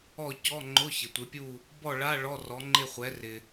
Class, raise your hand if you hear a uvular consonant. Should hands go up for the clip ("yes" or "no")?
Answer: yes